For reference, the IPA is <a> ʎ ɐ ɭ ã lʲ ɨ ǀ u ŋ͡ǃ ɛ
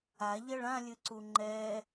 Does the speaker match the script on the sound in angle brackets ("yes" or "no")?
yes